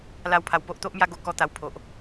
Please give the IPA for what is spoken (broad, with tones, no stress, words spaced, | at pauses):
la˥˧wpʰa˧w po˦ʔt̪o˦ʔmja˦ ɡo˦kɔ˦t̪a˧wpʰo˨ʔ